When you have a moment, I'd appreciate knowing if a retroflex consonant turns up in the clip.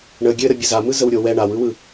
yes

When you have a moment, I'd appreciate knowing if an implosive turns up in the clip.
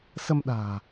yes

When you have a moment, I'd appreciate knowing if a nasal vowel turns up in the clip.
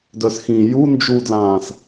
yes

